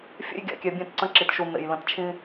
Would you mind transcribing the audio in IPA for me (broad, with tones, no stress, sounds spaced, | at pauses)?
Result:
fʲ ḛ˦ j ɡʲ a̰˨ kʲ ɛ˨ bʲ ɛ̃˦˨ t ǀ ə̃˦ ǁ i˨ t ʃ u˨ n̪ ḛ˨ j l ə̃˨ t t͡ʃʰ ĩ˦